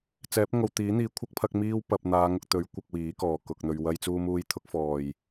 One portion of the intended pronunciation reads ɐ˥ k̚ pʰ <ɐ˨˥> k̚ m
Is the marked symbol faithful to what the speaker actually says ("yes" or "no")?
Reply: yes